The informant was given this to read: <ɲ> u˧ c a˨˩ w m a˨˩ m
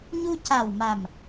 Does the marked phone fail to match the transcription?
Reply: no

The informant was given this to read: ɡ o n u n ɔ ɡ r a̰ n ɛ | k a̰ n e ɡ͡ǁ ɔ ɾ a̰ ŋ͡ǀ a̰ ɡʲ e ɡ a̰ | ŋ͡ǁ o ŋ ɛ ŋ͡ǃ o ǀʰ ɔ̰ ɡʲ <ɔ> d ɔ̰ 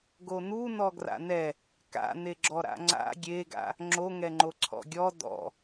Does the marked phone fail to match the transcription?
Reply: no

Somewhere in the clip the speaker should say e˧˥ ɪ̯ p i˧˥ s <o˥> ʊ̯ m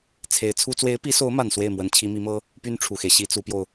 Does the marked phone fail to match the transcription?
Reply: yes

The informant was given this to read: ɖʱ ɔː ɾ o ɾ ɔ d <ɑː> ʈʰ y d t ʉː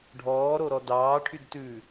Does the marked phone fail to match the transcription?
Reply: no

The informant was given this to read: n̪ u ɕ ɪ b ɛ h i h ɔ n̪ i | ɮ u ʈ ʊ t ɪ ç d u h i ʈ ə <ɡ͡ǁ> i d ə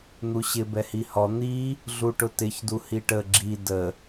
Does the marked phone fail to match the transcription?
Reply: no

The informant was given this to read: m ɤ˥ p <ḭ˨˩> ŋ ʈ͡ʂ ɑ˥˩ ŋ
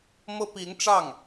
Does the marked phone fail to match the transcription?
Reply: yes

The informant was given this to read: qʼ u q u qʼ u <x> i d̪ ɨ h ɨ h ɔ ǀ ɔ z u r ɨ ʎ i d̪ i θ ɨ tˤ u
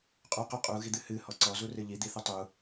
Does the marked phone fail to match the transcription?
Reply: yes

